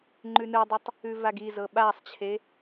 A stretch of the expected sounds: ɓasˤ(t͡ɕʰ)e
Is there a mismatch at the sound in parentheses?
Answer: no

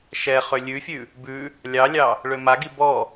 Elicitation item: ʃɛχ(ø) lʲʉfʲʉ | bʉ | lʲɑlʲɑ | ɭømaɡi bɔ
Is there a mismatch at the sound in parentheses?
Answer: no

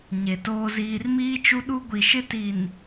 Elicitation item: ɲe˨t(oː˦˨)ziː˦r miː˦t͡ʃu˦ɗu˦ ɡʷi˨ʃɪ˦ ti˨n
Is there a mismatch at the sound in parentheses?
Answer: yes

